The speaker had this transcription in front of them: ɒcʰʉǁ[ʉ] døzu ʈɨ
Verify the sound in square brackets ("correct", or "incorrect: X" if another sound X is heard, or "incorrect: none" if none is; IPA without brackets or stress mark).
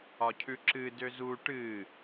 incorrect: ɨ